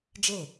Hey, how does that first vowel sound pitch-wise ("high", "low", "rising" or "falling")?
falling